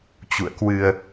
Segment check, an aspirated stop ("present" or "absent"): absent